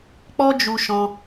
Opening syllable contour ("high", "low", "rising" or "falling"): high